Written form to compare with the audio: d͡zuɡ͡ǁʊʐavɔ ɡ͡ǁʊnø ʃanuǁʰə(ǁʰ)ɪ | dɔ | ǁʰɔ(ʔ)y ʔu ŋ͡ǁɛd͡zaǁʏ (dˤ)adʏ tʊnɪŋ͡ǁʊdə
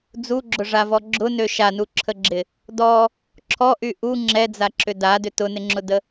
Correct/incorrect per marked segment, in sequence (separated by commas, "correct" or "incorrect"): incorrect, correct, incorrect